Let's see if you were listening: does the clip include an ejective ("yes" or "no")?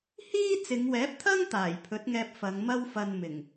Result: no